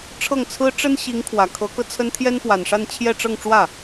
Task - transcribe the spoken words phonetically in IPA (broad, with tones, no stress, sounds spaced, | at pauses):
ʈ͡ʂʰ ɤ˥˩ ŋ t͡sʰ ɹ̩˥ ʈ͡ʂ ə˥ n ɕ i˧˥ ŋ kʰ w ä˨˩ kʰ ɤ˧˥ k ɤ˧ t͡sʰ ə˥ n t̪ʰ j ɛ˥ n p w a˨˩ n ʂ a˥˧ n t͡ɕʰ j ɛ˥˧ ʈ͡ʂ ɤ˥˧ ŋ ʈ͡ʂ w ä˥˩